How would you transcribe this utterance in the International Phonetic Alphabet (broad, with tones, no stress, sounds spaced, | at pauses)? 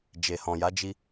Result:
d͡ʒ e˨ h ɔ̃˨ j a˨˦ d͡ʒ i˦